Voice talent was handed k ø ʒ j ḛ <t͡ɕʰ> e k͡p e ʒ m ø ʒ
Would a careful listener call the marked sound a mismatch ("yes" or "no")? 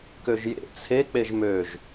yes